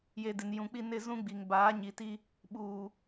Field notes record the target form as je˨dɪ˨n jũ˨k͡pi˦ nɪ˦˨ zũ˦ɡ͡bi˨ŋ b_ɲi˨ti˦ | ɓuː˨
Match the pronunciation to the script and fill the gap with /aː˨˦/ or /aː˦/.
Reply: aː˨˦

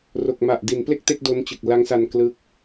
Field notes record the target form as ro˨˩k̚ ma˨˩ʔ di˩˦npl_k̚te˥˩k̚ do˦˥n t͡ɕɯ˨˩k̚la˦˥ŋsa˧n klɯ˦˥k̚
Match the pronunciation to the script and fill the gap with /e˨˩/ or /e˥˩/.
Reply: e˥˩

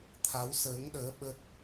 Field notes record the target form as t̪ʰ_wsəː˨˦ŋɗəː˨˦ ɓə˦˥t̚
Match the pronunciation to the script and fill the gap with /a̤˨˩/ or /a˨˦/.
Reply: a˨˦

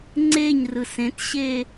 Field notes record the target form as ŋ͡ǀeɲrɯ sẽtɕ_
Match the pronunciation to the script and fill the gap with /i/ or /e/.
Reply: e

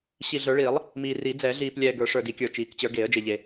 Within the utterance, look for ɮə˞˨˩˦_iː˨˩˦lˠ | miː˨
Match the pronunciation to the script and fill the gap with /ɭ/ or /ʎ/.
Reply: ɭ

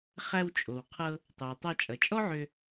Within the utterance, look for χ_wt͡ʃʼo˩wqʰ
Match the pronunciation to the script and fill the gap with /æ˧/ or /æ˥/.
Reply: æ˧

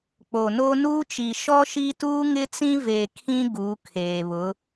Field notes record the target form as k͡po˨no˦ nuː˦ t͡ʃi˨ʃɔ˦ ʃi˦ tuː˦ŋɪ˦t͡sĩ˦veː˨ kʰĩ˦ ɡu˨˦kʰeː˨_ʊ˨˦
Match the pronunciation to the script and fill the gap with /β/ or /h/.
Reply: β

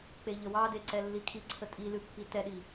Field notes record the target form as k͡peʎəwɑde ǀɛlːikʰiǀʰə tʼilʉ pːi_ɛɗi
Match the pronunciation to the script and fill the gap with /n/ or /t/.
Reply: t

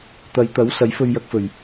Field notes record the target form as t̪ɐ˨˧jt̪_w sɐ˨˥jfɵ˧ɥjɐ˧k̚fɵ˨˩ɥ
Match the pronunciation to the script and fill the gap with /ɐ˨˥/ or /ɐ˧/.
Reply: ɐ˨˥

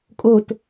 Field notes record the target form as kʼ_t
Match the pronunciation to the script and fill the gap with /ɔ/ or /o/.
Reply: o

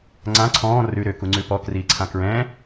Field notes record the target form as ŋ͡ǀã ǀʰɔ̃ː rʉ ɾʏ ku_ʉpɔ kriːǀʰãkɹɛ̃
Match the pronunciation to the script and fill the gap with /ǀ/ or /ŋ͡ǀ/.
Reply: ŋ͡ǀ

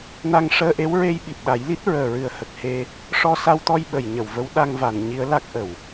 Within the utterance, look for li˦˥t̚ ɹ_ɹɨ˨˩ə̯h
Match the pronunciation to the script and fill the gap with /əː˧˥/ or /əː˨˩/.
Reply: əː˨˩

